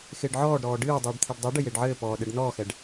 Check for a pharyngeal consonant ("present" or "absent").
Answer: present